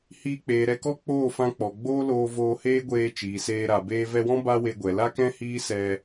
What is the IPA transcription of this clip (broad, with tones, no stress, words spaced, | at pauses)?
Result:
hiː˧k͡peː˨ɾɛ˧kɔ˦ k͡poː˦˨fã˧k͡pɔ˨ɡ͡boː˦ loː˧voː˧heː˦ɡʷeː˧ t͡ʃiː˨seː˧ɾa˨beː˦ vɛ˧wɔ̃˦ ba˦we˧ɡʷɛ˨ la˦kɛ̃˦ hiː˦sɛ˧